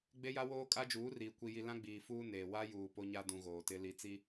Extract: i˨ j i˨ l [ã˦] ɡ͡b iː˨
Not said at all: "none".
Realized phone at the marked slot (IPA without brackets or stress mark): ã˦